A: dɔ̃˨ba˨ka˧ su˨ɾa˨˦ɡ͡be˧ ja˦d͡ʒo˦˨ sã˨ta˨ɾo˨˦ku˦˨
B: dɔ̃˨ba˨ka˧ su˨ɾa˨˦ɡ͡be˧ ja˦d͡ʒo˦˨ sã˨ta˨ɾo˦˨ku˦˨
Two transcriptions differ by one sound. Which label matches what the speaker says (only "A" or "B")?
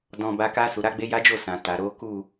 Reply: A